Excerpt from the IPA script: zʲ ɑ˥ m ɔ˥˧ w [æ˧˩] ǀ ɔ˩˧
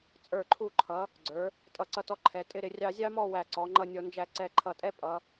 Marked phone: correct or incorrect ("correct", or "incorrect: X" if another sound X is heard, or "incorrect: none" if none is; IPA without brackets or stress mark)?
correct